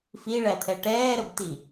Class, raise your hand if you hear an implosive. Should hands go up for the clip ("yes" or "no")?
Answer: no